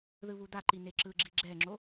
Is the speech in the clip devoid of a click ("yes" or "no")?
no